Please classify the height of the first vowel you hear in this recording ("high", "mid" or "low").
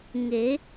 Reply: mid